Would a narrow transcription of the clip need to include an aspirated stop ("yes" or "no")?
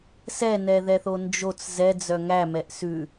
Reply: no